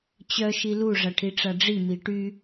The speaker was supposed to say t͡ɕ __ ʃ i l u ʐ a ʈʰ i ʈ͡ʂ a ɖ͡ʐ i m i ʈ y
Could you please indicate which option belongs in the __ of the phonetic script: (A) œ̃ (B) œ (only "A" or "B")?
B